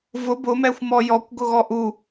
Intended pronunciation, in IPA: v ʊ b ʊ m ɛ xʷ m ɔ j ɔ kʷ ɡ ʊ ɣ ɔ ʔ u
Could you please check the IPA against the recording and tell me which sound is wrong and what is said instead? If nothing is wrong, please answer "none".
none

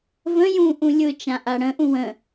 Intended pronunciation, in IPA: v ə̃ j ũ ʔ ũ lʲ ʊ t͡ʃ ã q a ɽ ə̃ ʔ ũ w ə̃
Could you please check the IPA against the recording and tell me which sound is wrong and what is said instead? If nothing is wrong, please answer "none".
q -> ʔ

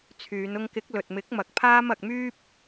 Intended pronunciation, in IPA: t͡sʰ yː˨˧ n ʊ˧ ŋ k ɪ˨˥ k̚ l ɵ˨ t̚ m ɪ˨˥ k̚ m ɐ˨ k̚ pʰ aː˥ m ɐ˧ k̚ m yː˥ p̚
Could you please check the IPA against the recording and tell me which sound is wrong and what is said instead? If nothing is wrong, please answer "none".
none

